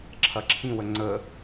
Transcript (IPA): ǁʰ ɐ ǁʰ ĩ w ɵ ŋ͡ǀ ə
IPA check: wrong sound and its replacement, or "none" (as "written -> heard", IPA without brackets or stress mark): ɵ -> ə